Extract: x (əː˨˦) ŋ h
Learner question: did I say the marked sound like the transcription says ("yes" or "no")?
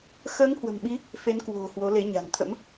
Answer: yes